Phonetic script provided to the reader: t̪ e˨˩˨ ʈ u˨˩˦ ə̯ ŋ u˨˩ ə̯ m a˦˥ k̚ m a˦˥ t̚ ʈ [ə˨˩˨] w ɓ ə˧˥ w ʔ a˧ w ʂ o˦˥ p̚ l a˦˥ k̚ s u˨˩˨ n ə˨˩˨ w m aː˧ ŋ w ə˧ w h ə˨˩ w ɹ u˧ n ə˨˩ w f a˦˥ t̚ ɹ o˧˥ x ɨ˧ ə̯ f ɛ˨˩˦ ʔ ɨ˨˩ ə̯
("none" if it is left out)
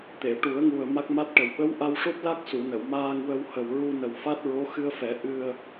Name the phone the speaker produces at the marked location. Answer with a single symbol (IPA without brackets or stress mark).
ə˨˩